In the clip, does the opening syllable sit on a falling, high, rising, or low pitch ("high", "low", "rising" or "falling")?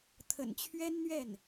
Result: low